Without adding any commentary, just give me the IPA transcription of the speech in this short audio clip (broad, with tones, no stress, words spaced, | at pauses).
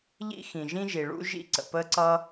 ʎḭ˥xĩ˩ʒĩ˥ʒi˩ ɭṵ˥ʒḭ˥ǀə̰˩ pə˥ǀʌ˥